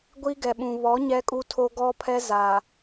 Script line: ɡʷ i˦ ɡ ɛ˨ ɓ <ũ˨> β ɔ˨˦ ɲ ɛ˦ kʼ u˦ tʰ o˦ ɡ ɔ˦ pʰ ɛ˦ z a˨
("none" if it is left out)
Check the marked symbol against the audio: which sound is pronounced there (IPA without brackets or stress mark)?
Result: ũ˨